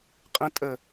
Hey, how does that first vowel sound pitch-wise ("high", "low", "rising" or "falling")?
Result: low